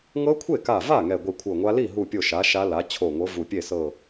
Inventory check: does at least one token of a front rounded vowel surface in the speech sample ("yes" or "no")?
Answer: no